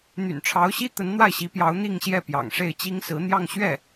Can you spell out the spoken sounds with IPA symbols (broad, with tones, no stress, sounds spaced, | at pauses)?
n̪ y̰˨˩ n ʈ͡ʂʰ ɑ˧˥ ʊ̯ ɕ i˥ t̪ ə˧˥ n n̪ w a˥˩ ɪ̯ ɕ i˧˥ p j ɑ˧˥ ʊ̯ n̪ i˥˧ ŋ ɕ j ɛ˥˩ p j ɑ̰˨˩ ŋ ʂ e˥˩ ɪ̯ t͡ɕ i˥ ŋ s ɹ̩˧˥ n̪ j ɑ˥˧ ŋ ɕ ɥ ɛ˥˩